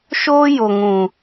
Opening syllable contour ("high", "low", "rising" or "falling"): high